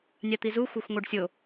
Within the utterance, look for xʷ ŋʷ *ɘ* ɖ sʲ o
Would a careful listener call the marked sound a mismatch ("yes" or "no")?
yes